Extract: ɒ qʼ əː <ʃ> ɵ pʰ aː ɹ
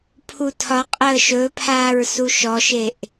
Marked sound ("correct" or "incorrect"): correct